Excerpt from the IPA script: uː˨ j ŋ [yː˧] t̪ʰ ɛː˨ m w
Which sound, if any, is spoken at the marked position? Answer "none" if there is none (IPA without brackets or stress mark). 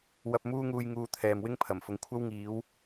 uː˧